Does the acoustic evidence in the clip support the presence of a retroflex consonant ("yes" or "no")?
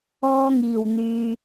no